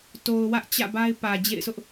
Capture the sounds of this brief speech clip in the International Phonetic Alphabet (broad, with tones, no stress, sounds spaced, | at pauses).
t o˨ ʊ̯ w ä˦ ʔ t͡ɕ ä̰˦˨ b a˦ ɪ̯ p ä˨ d͡ʑ ḛ˦˨ ɪ̯ s ʊ˦ ʔ